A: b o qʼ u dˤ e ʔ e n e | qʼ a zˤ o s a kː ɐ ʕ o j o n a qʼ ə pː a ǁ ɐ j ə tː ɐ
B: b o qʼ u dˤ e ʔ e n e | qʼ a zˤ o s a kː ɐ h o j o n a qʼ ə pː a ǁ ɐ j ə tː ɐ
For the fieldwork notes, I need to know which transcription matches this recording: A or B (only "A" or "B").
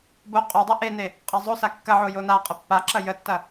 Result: A